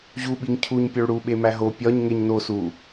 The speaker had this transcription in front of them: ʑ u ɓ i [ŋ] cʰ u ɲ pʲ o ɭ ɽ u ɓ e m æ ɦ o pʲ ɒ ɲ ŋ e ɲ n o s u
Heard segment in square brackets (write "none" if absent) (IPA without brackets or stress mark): ŋ